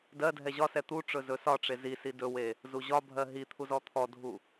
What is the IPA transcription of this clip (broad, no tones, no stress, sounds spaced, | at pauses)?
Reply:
d ɜ dʱ ɛ ʑ ɒ s ɛ t̪ u ʈ͡ʂ ɵ z ɵ s ɒ ʈ͡ʂ e z i s i d ɵ w e | z u ʑ ɒ bʱ ɜ ɦ i t̪ʰ u z ɔ t̪ʰ ɔ dʱ u